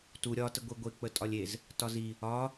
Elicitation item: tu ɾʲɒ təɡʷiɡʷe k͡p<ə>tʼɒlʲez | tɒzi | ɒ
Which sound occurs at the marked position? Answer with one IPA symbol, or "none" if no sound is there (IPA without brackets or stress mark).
ə